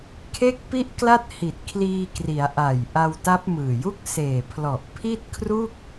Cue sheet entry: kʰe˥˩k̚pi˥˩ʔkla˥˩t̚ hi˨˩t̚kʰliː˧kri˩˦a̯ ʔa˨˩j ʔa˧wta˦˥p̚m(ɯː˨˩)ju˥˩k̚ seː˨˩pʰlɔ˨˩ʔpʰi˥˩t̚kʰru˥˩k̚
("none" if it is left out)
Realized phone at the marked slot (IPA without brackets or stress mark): ɯː˨˩